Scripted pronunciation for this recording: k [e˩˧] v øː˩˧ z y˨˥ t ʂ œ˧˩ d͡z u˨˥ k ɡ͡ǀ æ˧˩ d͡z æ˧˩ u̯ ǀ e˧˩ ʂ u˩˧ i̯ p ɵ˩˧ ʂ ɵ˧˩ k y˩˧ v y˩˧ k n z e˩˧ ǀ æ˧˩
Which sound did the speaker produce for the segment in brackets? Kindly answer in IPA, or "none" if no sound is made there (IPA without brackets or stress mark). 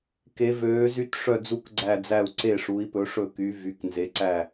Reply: e˩˧